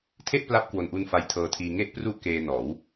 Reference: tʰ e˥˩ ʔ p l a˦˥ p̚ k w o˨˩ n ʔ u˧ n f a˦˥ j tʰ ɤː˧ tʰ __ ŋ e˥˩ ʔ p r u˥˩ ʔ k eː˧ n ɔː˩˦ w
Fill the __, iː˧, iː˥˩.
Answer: iː˧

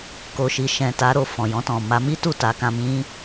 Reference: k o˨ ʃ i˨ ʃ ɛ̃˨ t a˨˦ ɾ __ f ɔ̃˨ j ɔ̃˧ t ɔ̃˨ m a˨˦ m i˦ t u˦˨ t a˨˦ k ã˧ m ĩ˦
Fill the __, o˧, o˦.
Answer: o˧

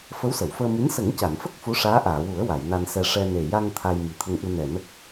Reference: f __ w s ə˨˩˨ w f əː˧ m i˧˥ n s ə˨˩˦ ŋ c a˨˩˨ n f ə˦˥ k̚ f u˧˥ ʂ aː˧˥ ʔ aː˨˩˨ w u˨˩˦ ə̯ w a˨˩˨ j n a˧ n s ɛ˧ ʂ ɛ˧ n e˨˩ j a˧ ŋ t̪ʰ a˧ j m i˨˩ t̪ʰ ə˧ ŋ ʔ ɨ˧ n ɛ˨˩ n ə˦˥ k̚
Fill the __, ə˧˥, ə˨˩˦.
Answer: ə˧˥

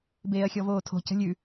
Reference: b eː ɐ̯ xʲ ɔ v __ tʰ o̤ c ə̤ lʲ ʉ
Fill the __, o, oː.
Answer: oː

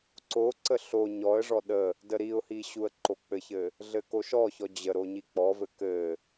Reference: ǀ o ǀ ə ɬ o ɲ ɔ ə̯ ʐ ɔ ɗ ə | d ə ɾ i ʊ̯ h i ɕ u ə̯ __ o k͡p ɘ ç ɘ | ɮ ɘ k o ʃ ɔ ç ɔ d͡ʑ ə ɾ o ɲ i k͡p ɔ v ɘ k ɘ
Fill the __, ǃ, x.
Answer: ǃ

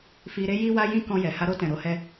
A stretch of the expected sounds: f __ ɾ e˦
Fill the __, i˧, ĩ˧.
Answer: i˧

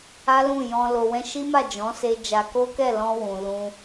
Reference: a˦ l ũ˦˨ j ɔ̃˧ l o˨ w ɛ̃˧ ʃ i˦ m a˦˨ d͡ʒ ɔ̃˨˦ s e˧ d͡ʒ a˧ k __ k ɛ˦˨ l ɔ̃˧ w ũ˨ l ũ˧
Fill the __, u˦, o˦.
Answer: o˦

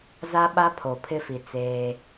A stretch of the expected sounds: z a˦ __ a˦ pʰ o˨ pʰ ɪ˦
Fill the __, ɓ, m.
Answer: ɓ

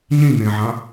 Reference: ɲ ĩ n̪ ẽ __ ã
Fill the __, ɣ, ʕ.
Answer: ʕ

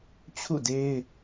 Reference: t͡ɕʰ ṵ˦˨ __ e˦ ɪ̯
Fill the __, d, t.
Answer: d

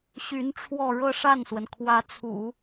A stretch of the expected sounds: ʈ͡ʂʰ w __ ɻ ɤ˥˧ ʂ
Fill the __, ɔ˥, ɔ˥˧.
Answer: ɔ˥˧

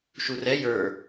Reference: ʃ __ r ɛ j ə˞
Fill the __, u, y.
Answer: u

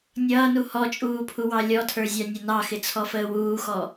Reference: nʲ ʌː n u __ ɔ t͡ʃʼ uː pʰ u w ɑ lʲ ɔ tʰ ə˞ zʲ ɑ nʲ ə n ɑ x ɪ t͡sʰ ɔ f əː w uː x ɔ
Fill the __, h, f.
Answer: h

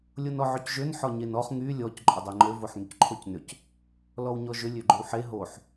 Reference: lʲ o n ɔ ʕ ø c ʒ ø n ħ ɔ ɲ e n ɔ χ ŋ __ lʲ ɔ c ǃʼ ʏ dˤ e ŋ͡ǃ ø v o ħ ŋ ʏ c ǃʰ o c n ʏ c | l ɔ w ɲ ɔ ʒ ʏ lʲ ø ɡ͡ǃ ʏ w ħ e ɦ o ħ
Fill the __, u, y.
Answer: y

